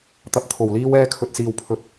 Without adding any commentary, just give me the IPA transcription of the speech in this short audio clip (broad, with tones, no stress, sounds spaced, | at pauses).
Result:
t̪ ɐ˨ p̚ t̪ʰ o˨˩ w l iː˧ w ɛː˧ kʰ ɵ˧ t̚ s iː˧ w pʰ ɵ˧ t̚